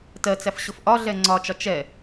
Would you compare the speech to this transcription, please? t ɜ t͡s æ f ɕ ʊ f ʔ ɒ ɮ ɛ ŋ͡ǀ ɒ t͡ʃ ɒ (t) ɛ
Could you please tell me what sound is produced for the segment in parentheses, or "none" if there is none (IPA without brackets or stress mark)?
t͡ʃ